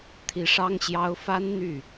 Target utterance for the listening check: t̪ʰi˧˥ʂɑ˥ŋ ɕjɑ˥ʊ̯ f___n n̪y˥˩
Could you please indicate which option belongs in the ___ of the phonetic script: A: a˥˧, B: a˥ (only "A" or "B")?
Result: B